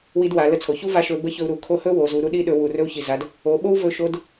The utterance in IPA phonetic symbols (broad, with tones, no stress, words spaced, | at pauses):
wi˧˥dwa˩˧lə˧˥t͡sʰo˩ çu˥va˧˥ ʃɵ˧˥ bə˧˥çɵ˧u̯ ɾu˩˧kʰo˧˥hɵ˥ wo˩˧zu˩˧ɾu˧˥ ɗi˧˥ɗɵ˩˧ wu˩rɵ˧u̯çi˩za˩˧d | o˩˧ɓo˥wvɵ˧ ʃo˧˥d